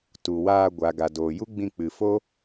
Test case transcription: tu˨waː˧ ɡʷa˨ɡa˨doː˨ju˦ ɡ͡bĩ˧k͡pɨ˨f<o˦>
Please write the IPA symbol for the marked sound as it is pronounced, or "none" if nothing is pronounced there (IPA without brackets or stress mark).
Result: o˦